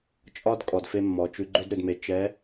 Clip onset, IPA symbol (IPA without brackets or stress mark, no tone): t͡ʃʼ